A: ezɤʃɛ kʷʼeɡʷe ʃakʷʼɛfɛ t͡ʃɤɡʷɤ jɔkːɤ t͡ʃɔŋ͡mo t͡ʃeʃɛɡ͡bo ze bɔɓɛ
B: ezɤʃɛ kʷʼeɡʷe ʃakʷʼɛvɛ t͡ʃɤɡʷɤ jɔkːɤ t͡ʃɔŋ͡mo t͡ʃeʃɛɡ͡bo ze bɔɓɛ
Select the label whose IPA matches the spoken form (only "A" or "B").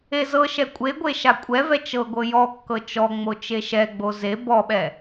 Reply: B